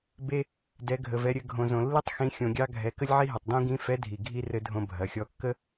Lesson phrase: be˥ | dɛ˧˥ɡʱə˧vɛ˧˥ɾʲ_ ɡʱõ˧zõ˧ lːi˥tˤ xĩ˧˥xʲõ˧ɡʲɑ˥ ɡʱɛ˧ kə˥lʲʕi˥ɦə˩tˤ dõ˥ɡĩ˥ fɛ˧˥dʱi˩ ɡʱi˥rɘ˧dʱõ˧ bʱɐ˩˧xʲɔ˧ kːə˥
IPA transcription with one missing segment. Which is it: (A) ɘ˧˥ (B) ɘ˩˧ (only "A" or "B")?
A